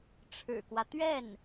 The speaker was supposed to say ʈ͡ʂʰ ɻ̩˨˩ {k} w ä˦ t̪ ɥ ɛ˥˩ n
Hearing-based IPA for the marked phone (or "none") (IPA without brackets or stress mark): k